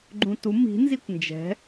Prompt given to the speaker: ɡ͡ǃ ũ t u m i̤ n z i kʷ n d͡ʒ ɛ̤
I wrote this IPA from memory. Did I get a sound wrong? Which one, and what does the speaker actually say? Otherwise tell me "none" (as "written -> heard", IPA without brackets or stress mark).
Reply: none